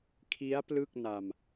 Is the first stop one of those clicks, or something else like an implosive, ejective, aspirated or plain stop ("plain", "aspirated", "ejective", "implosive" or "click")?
aspirated